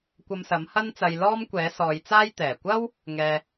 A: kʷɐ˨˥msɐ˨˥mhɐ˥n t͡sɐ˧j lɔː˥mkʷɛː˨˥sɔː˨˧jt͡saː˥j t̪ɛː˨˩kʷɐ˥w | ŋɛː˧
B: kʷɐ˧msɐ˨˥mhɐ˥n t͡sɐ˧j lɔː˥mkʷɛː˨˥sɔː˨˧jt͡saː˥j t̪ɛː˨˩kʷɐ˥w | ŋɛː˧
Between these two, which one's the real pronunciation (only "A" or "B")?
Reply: B